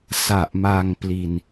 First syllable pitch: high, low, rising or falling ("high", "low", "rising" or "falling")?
low